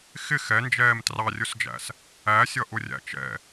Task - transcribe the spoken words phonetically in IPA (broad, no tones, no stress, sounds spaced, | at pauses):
x ɪ x ɛ n d͡ʒ ɛː m t r ɑ rʲ ʊ s d͡ʒ æ̰ s | æ sʲ ʌ ʔ ʊ rʲ æ̰ t͡ʃ ɛ̰